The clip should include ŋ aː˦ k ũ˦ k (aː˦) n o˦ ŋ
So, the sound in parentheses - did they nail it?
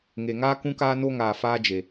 yes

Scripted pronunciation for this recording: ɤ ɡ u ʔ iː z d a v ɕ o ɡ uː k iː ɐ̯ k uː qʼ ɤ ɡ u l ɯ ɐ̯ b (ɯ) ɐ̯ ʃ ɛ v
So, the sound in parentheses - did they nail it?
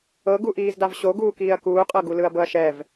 no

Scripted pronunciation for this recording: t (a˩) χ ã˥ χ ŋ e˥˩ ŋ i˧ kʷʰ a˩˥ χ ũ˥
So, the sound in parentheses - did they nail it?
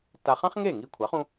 no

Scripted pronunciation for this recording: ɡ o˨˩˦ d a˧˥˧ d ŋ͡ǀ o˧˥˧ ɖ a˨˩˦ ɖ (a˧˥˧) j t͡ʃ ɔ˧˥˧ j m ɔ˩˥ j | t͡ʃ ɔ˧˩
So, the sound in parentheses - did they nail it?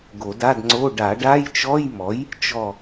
yes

